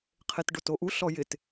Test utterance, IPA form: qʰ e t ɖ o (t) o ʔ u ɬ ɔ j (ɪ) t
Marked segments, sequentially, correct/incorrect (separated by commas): correct, correct